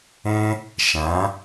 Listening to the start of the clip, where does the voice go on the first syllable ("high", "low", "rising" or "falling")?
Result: high